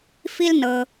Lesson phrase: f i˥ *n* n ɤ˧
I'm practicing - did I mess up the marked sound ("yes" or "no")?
yes